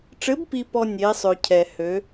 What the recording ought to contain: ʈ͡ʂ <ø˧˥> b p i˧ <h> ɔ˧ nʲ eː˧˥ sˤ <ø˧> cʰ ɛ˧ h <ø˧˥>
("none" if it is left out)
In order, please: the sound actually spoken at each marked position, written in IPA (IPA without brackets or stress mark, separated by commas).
ɘ˧˥, p, ø˧, ø˧˥